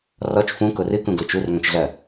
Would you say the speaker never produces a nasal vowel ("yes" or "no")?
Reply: no